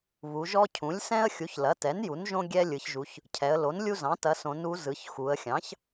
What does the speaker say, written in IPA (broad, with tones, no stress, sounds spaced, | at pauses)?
β u˩˧ ʒ ɔ˦ cʰ ũ˩˥ lʲ s ɛ̃˦ ə̯ xʲ u˩˥ ç l ɐ˩˥ t ɛ˩˥ n j u˩˥ n ʒ õ˦ ɡʲ ɛ˦ lʲ ɯ˩˧ ç ʒ u˩˧ ç | cʰ ɛ˩˧ ə̯ l o˩˥ n lʲ u˦ z ɑ̃˩˥ t ɐ˩˧ s õ˩˧ n u˩˧ z ɯ˩˧ ç x u˩˧ ə̯ xʲ ɑ̃˩˥ ç